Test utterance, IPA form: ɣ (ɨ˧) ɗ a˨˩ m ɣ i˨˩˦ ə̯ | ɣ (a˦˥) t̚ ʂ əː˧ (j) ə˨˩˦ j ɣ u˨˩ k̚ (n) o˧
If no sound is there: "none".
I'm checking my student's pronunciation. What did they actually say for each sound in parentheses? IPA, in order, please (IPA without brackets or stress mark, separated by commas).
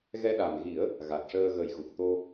ɛ˧, a˨˩, ɣ, t̪